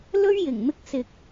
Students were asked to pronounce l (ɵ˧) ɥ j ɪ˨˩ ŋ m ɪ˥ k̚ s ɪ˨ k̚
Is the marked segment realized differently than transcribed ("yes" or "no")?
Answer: yes